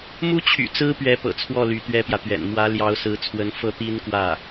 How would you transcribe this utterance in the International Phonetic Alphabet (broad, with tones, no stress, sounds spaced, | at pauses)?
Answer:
m u˥ t͡ɕʰ y̰˨˩ t͡s ɹ̩˥ p ɥ ɛ˧˥ p ɤ̰˨˩ t͡sʰ w ɔ˥˩ l y˧˥ t̪ ɥ ɛ˥ p j ä˨ t̪ ɥ ɛ̰˨˩ n m w ä˧˥ l j ɑ˧˥ ʊ̯ s ɹ̩˧˥ t͡sʰ w ə˧˥ n f ɤ˥˩ t̪ i˥ n k w ä˥˩